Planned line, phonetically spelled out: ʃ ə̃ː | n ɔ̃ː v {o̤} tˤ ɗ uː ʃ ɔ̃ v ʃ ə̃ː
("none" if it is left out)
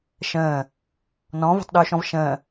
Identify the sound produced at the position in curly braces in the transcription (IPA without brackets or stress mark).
o̤